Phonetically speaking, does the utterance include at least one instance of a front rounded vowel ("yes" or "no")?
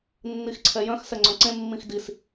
yes